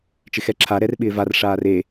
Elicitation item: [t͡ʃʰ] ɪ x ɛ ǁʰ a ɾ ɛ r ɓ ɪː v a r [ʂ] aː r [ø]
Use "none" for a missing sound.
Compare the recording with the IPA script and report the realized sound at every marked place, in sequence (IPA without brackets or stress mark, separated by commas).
t͡ʃ, ʂ, e